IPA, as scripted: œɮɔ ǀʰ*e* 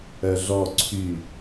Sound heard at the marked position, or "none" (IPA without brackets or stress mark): y